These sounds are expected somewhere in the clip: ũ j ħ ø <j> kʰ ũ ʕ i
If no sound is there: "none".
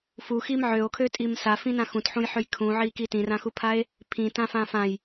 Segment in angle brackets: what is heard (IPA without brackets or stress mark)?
j